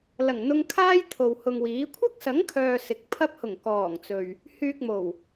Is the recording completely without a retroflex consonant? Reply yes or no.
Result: yes